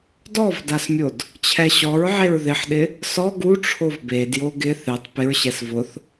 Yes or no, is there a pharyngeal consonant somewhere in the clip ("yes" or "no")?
yes